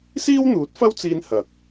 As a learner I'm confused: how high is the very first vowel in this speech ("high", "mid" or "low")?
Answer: high